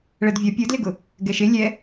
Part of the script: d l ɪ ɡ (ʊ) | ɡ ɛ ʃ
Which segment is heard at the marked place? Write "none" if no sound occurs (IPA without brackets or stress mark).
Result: ʊ